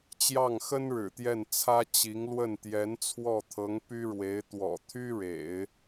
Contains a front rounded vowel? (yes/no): yes